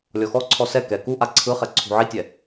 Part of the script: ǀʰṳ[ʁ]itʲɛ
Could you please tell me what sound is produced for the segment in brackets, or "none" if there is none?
ʕ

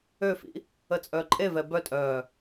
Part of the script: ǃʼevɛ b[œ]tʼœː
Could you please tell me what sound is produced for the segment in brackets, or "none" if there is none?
œ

